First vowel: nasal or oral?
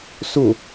oral